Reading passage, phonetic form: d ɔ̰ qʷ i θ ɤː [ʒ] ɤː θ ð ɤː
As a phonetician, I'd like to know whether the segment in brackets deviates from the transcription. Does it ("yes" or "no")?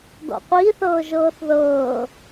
no